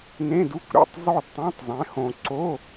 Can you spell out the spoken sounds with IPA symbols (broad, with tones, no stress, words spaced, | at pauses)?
nẽ˧˥˧du˧˥˧kʷɾḛ˥˩tˤ zˤo˥˧dtˤõ˧˥˧tˤzˤɛ̃˨˦ hõ˨ǀo˧˥˧